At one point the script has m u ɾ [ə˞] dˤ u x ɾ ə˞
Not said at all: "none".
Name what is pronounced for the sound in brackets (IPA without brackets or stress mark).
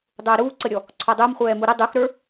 ʌ